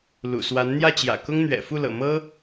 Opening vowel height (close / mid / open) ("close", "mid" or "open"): close